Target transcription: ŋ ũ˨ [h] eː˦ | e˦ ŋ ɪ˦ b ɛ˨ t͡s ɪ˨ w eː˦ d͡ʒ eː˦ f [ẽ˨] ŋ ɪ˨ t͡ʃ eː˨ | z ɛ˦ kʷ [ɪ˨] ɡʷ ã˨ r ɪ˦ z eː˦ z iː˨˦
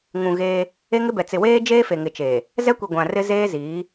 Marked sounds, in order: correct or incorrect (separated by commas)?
incorrect, incorrect, incorrect